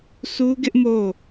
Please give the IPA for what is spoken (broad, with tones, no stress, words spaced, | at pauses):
sʰu˦ɡɪ˦ʔ mo˦˨